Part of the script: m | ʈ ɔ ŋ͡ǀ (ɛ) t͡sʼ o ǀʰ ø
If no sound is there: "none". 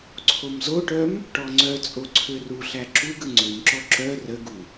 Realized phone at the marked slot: œ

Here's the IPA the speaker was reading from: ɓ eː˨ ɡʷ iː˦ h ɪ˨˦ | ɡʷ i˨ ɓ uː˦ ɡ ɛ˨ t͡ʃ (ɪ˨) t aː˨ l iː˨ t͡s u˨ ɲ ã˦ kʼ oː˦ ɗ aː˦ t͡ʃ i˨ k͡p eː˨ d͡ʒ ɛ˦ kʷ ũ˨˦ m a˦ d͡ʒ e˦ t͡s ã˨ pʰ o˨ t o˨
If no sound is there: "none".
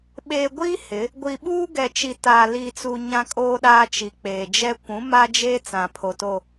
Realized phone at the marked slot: i˨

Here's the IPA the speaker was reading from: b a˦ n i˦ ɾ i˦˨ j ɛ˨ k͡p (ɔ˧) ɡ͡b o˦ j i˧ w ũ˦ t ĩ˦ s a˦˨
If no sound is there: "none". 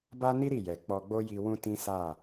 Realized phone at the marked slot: ɔ˧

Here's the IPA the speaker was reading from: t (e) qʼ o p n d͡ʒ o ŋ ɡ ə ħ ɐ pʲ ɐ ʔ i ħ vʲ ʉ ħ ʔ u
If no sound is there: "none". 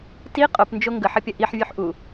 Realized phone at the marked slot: i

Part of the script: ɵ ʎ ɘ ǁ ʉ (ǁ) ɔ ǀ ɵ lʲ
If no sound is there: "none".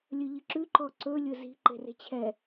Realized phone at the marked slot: ǃ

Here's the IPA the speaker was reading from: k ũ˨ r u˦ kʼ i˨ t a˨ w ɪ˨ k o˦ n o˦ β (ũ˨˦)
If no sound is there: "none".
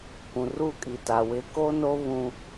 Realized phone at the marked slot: ũ˦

